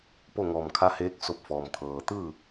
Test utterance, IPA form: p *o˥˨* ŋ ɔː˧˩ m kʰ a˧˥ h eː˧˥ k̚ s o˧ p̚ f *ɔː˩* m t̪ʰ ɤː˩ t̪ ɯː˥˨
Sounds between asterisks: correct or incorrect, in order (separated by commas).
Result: correct, correct